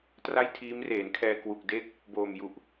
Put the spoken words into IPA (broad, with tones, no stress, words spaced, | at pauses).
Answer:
tra˥˩jtʰiː˦˥mreː˩˦nkʰɛː˧ kwu˨˩k̚ de˥˩k̚ | boː˨˩mju˨˩ʔ